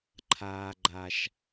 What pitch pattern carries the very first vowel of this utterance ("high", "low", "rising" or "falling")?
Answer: high